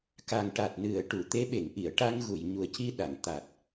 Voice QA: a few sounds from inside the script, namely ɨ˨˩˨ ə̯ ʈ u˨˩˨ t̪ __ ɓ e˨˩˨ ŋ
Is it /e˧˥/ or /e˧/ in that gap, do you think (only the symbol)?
e˧˥